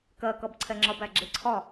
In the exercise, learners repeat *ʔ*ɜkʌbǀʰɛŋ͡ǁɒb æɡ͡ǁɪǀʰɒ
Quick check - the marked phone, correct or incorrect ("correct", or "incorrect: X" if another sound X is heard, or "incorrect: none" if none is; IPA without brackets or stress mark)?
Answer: incorrect: k